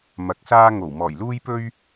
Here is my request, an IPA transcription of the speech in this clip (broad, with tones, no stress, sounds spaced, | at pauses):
m ɐ˨˥ k̚ s aː˥ ŋ o˨˩ w m ɔː˨˩ j l uː˥ j p ɵ˥ ɥ